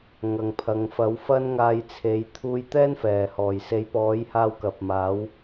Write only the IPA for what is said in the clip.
ŋɐ˨ŋpʰɐ˨˧ŋ fɐ˨˥wfɐ˥nŋaː˧jt͡sʰe˨˥j t̪ʰuː˧jt̪ɛː˥nfɛː˨˩hɔː˨˩j se˨˥jpɔː˨˥jhaː˧w kɐ˨p̚maː˨˥w

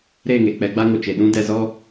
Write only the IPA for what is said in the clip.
ɾe˦˨ŋe˨ k͡pɛ˧ɡ͡ba˦ŋo˨t͡ʃe˨ ɗũ˦ dɛ˧zɔ˦

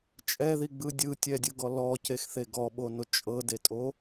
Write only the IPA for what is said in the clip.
t͡ʃʼɛðiɡ͡bɯ dʲɯtʲɛdʲɯɡɔ lɔcexθe ɡɔɓono t͡ʃʼɤdetʼo

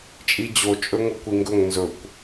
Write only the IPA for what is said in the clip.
t͡ʃʼid͡ʑo t͡ʃʼɵŋokʷiŋɡɵŋ nzɵkʷ

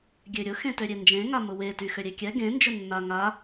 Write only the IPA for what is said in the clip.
ɡʲøɾʲʊ xẽtøɾʲend͡ʒẽ ŋamʊwe tyxøɾʲekʲɛ ɡẽ nd͡ʒʊnːa ŋa

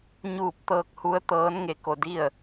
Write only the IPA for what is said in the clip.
ɲuː˥˨p̚ t̪ɤː˧k̚ hu˧˥ə̯t̪ɤː˧˥n ŋe˧˥ko˧di˥˨ə̯

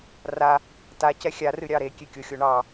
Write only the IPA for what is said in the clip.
ra | ta cɛxʲarɨ ɾʲɑɾekʲe kʲoxʲoɳɑ

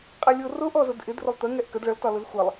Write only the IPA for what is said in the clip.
qʼɛlʲʊ rʊʔ ɔzʊdʔɪd rʊlˠt̪ə ŋɛʔkəd ɭəl tɒlʊzxʷɛlˠ

